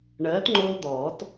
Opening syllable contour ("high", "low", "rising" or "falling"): rising